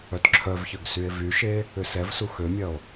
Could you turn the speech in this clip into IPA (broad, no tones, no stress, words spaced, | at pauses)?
œtǁʰœvçœɡ sye̯vyʃe | ʏsɛvsu xømʲɐo̯